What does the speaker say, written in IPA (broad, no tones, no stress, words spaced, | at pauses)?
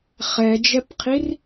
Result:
χɛd͡ʒɛpqʰir